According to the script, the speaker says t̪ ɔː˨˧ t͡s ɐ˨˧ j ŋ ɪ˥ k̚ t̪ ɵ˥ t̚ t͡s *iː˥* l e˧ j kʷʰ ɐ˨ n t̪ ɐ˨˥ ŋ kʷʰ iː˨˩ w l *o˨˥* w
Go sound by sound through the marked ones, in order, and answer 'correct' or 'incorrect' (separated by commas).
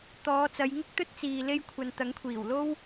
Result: incorrect, incorrect